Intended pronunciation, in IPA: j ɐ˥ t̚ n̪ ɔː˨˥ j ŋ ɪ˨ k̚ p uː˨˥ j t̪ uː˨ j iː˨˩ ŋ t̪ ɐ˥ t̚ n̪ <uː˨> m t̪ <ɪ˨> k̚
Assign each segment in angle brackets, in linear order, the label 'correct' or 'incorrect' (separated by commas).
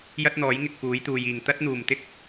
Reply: incorrect, incorrect